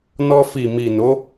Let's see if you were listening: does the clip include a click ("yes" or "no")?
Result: no